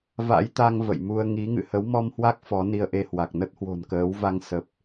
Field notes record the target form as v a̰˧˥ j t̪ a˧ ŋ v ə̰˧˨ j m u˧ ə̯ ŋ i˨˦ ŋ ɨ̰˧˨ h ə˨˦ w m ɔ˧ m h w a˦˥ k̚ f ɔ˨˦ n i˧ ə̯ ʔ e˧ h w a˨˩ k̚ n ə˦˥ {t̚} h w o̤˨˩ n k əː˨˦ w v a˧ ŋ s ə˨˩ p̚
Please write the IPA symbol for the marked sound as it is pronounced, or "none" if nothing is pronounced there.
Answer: t̚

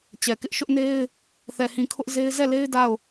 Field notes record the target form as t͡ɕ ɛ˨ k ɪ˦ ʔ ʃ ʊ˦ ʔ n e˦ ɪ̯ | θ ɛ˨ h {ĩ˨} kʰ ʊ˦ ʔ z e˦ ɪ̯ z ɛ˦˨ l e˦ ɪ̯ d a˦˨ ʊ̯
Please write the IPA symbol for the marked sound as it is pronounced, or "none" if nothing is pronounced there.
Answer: ĩ˨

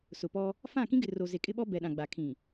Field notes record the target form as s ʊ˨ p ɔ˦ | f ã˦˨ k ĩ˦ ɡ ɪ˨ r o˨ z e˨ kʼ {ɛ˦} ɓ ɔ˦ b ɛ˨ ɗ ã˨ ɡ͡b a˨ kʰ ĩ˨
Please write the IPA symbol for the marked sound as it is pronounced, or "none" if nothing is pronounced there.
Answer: ɪ˦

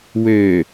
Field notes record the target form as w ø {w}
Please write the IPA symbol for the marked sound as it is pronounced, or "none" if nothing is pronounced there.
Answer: none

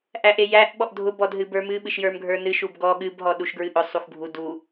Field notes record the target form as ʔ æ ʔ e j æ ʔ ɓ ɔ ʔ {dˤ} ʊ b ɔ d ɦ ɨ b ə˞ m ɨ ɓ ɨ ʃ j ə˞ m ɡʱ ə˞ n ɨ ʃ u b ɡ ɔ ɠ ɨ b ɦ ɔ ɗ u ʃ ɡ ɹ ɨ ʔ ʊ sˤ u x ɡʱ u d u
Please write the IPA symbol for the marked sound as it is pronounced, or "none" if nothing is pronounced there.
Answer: dʱ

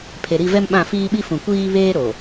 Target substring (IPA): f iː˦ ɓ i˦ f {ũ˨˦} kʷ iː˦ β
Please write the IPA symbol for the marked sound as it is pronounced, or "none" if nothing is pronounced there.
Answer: ũ˨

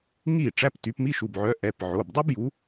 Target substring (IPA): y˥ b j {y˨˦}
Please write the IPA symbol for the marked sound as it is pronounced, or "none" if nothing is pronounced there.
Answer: u˨˦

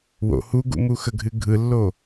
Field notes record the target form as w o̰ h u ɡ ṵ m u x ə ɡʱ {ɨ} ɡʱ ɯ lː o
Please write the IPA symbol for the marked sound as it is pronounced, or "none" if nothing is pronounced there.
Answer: ɨ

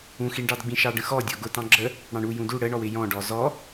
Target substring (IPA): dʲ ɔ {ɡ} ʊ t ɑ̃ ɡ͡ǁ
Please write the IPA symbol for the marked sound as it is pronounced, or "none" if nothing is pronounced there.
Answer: ɡ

